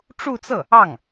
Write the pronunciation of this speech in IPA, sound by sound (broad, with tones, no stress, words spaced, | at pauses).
ʈ͡ʂu˥˧t͡sɤ˥˩ | ɑ˥˩ŋ